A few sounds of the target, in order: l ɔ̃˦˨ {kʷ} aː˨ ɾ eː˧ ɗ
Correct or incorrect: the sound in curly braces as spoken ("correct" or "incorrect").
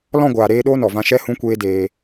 incorrect